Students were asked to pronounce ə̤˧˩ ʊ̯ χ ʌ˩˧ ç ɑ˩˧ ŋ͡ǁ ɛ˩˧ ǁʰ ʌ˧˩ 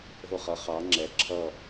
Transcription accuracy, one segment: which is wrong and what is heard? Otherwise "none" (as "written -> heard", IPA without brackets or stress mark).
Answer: ç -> χ